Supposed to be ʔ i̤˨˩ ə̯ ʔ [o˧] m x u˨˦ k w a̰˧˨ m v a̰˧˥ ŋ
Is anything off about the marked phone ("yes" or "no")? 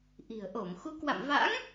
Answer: yes